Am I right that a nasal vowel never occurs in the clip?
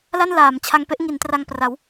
yes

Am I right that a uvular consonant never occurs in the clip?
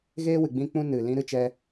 yes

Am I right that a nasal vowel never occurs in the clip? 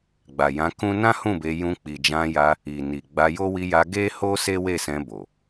no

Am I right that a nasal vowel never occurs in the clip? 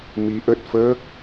yes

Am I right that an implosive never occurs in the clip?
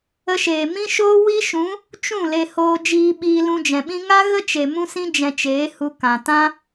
no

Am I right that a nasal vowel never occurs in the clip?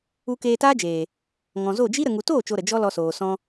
no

